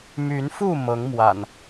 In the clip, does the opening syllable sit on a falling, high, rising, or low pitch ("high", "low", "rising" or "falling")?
rising